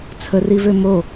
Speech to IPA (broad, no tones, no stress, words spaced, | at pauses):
t͡sʰərivø mo